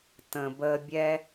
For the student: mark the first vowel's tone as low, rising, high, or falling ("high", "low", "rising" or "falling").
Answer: low